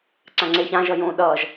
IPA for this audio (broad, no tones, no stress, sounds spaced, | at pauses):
ǀ ã ŋ͡ǀ e ç ã ʒ ʌ j õ ɗ ʌː ʒ